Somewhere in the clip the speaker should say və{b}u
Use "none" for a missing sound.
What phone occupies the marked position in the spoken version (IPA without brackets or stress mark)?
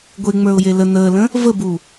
b